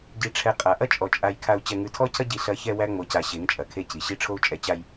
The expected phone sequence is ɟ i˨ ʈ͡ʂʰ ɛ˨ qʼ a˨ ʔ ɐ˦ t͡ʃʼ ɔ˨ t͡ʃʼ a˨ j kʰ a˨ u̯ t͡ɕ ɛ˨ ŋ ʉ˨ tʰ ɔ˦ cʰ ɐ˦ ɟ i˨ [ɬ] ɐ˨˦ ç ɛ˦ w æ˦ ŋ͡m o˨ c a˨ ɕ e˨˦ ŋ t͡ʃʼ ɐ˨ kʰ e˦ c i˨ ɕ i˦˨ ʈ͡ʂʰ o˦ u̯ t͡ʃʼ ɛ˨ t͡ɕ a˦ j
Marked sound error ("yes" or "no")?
no